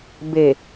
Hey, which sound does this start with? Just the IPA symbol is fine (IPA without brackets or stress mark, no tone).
b